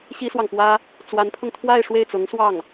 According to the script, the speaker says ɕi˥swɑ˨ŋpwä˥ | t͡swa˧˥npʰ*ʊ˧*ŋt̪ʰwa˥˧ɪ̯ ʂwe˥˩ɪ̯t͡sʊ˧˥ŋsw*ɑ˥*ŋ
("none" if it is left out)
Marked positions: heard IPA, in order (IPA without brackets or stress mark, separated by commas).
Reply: ʊ˧, ɑ˥˩